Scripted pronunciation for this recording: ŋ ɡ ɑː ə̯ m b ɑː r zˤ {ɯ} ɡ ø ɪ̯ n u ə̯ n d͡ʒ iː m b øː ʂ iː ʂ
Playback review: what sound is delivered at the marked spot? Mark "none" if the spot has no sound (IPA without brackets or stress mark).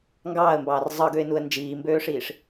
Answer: ɯ